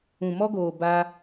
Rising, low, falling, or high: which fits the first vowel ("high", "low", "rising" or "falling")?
low